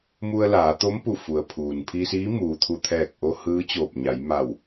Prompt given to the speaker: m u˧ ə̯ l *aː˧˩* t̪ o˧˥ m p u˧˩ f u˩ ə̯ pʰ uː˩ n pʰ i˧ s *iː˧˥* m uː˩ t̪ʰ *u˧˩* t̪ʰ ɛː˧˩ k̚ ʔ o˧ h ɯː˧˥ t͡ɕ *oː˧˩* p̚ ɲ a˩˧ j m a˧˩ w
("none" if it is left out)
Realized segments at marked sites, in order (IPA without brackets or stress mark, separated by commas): aː˩˧, iː˧˥, u˧˩, oː˧˩